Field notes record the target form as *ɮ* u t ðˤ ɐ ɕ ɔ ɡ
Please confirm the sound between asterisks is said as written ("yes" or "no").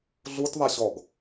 yes